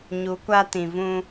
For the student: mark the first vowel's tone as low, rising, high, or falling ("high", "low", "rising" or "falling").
rising